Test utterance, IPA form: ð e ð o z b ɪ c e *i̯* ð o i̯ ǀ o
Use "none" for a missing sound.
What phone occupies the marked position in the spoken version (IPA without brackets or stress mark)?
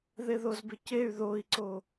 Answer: y̯